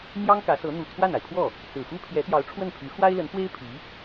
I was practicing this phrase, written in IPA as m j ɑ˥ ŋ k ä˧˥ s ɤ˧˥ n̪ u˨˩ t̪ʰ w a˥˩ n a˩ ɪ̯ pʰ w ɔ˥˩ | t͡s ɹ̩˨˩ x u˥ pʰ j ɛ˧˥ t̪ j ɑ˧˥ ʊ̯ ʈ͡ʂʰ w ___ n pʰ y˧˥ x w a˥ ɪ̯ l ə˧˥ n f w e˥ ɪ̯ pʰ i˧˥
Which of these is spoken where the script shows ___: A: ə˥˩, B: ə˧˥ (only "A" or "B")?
A